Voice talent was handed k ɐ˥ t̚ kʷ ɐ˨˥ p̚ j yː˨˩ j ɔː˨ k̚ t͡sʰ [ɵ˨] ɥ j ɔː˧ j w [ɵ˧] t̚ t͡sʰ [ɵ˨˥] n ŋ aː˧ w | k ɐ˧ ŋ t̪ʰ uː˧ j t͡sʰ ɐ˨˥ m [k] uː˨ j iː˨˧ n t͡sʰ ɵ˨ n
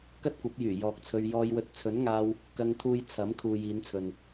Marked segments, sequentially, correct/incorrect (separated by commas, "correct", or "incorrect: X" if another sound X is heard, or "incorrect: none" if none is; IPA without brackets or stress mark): incorrect: ɵ˧, correct, correct, incorrect: kʰ